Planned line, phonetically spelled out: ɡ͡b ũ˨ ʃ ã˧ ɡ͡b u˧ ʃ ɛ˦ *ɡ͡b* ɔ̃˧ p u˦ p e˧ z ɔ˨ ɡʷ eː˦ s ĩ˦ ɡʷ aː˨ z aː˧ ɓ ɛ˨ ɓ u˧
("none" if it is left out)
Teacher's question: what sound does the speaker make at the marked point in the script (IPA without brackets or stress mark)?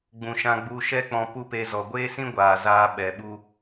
k͡p